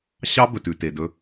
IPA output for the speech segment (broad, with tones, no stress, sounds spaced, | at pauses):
ɕ ɑ˦ b ɵ˨ t ʉ˨ t e˨ d ɵ˦